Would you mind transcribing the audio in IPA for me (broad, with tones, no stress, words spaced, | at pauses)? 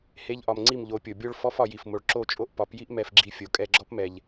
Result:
he˦ʎʔɒ˧m ŋ͡ǀi˦˨mʎo˨˦pʲo˨ bʲo˦ɭ fɔ˦f ɒ˧ji˨f mo˨ɭ ǁo˦˨t͡ʃʼo˦ʔ pɒ˨˦pji˦ʔ mɛ˧fɡ͡ǁi˧ fʲo˨ kʼɛ˧ɡ͡ǁɔ˦pmɛ˨ʎ